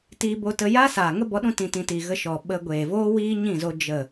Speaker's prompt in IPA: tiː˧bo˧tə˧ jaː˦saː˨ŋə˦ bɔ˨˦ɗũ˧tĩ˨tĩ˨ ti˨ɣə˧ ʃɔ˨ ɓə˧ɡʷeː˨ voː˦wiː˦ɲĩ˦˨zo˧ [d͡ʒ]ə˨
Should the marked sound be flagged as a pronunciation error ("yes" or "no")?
no